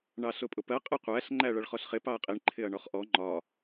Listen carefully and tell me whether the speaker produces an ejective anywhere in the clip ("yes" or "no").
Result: yes